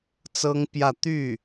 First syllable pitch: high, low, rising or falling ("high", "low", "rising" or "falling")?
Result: high